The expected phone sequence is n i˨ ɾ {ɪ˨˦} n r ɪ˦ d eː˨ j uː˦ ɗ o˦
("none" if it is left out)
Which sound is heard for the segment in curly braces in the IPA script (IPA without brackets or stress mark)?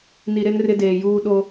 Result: ɪ˦